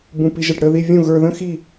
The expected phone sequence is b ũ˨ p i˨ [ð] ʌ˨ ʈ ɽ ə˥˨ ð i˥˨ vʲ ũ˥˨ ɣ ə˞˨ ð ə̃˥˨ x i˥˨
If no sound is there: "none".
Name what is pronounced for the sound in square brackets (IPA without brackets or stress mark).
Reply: ʒ